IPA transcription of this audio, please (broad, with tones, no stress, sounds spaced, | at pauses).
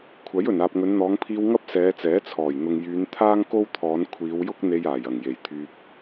kʷʰ ɐ˨˥ j ɵ˨˩ n aː˨ p̚ ŋ ɵ˨˧ n n̪ ɔː˨˧ ŋ pʰ iː˧ w ŋ ɐ˥ p̚ s ɛː˨˧ t͡s ɛː˨˥ t͡sʰ ɔː˨˩ j n̪ ʊ˨ ŋ j yː˨˧ n t̪ʰ aː˥ ŋ k o˥ w t̪ʰ ɔː˨˧ n kʷʰ iː˨˧ w j ʊ˥ k̚ n̪ e˧ j aː˨˩ j ɐ˨˩ ŋ j e˨˩ j t̪ʰ yː˧ p̚